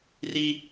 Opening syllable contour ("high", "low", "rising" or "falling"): high